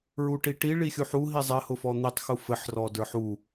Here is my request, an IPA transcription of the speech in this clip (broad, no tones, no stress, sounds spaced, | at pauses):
ɹ u ʈ i ʈ i ɭ i xʲ u ħ u ɦ i zˤ ɘ h ʊ f ɔ n̪ i tˤ x u f ɘ ħ r ɔ d ə˞ ħ u